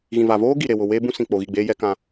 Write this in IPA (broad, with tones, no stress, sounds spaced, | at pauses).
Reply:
ɣ ĩ˨ v a˨ v oː˦ ɡ i˨ ɾ e˨ w ʊ˨ w eː˦ b ũ˦ s ĩ˨ k͡p o˨ ɣ i˦˨ ɡ͡b eː˦ j ɛ˦ k ã˦